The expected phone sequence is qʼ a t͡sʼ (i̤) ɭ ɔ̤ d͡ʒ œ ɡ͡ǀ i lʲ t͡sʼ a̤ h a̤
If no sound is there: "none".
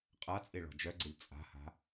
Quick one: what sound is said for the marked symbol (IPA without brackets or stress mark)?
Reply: i